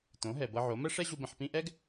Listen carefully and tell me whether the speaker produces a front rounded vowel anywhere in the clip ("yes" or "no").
no